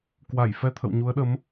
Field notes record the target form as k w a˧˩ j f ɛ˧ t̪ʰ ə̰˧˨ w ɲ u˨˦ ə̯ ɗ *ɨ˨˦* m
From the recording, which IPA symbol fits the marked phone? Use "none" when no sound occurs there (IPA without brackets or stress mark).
ə˨˦